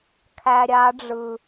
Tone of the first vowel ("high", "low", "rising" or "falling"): low